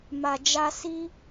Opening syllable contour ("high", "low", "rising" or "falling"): low